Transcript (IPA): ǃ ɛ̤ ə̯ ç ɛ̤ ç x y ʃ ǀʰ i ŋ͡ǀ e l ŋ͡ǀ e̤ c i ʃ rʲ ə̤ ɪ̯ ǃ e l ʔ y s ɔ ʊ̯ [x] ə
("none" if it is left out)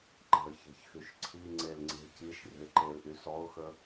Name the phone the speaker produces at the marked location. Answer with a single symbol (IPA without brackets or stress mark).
x